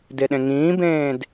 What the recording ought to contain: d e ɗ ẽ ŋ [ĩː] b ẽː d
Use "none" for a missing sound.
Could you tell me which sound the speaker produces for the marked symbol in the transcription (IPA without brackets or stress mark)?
ĩː